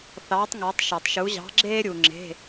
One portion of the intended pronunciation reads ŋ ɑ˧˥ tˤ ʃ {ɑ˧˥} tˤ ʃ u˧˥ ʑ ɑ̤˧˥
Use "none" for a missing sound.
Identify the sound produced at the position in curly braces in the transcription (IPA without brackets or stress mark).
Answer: ɑ˧